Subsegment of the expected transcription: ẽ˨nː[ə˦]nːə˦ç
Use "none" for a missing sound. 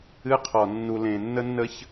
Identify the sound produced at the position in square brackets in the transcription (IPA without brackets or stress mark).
ə˦